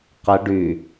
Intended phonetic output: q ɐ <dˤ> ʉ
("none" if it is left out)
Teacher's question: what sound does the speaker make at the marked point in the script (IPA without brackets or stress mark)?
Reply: ɖ